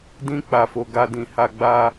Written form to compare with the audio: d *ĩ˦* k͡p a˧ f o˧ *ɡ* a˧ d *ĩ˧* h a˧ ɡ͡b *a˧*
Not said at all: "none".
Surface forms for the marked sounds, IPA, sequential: ĩ˦, ɡ, ĩ˧, a˧

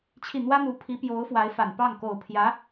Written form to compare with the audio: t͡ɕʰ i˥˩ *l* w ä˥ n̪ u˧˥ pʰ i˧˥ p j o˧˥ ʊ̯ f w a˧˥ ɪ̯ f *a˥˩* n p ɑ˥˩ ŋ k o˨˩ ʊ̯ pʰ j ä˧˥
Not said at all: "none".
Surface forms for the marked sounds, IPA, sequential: n̪, a˨˩

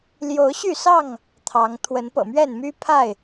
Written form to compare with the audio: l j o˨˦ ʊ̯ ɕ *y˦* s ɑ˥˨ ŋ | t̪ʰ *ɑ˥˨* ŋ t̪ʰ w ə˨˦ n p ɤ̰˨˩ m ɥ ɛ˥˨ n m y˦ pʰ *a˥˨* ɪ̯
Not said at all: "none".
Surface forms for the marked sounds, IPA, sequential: y˥˨, ɑ˨˦, a˥˨

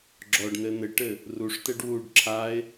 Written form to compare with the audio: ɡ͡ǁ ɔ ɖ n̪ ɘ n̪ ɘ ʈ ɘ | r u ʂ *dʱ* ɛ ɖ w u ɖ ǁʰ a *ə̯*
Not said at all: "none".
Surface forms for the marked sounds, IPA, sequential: t̪, ɪ̯

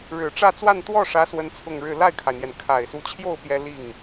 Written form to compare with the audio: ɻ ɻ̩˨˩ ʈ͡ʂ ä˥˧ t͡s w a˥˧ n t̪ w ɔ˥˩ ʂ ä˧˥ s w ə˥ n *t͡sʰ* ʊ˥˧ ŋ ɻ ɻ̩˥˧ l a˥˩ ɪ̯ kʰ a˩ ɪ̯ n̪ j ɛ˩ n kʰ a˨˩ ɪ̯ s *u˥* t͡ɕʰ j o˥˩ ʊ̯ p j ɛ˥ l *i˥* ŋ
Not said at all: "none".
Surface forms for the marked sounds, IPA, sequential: t͡sʰ, u˧˥, i˥˩

